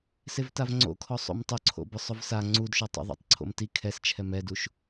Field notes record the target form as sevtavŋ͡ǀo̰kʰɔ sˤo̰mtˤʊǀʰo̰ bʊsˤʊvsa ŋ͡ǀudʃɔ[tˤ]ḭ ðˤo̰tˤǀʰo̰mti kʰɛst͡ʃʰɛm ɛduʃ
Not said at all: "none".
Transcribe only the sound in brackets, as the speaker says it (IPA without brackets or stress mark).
tˤ